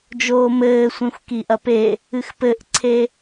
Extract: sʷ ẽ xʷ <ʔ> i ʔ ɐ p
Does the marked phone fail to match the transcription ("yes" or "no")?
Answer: yes